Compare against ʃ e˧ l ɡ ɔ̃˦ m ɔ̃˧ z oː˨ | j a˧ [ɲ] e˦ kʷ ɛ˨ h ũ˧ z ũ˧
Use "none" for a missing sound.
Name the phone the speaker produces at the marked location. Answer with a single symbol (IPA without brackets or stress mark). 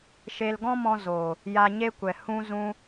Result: ɲ